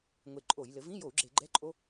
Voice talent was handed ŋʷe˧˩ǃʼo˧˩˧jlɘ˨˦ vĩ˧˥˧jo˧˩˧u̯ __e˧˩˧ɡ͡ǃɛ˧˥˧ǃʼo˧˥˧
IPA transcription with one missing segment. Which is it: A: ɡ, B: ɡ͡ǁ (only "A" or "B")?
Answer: B